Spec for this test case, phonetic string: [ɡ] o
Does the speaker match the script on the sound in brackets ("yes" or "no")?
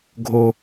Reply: no